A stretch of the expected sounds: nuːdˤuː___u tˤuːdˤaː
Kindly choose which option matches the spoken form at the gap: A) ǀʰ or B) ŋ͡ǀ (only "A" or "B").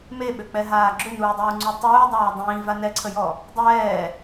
B